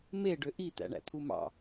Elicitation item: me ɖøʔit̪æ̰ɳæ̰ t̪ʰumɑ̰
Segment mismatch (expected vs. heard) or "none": none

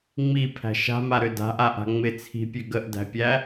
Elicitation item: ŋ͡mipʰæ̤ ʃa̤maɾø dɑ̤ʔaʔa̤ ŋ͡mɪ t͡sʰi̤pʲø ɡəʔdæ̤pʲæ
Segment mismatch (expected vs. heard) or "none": ɑ̤ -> a̤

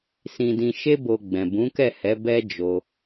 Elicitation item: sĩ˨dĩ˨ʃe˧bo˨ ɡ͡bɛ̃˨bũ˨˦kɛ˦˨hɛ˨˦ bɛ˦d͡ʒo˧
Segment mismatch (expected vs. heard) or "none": none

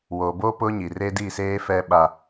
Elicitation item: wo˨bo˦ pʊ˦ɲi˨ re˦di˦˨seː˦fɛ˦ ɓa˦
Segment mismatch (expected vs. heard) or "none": none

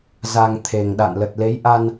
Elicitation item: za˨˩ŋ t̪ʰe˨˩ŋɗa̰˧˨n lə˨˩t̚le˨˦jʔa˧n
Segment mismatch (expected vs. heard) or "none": none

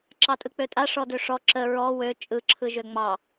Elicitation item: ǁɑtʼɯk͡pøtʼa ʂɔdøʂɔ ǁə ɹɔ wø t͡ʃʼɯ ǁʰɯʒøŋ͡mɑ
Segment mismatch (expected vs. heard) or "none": none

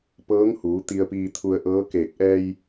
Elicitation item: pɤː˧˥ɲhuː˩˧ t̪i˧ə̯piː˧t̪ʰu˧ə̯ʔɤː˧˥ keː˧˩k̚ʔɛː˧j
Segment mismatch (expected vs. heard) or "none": ɲ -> ŋ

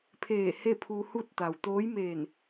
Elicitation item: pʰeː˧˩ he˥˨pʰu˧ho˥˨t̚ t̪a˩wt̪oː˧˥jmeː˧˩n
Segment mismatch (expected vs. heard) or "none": o˥˨ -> u˥˨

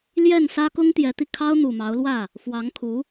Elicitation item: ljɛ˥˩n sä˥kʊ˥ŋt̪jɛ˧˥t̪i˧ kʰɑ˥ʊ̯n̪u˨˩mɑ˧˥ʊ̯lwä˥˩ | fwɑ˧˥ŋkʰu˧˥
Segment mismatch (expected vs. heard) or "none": none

